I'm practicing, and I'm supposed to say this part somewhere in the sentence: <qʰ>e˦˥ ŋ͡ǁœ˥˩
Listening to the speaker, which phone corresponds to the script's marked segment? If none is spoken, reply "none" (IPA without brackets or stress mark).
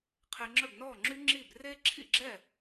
qʰ